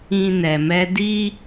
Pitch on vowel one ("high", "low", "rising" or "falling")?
low